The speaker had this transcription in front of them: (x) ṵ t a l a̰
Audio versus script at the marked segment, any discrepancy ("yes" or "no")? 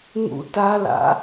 yes